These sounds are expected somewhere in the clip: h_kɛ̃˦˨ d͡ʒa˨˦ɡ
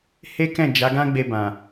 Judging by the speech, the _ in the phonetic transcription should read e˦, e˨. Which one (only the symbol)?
e˦